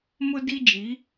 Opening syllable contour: high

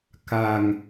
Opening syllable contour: low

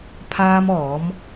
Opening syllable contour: high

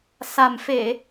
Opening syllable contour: low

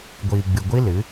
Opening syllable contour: low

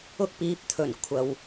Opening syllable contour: high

